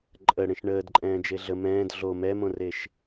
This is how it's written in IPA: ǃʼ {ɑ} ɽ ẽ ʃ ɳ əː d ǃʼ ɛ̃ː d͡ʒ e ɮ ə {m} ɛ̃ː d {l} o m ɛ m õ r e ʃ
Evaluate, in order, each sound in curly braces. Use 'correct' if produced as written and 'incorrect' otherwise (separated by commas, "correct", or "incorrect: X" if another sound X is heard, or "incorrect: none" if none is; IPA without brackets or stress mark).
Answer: incorrect: ə, correct, incorrect: ɮ